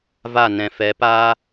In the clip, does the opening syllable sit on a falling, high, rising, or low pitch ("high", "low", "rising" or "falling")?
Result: falling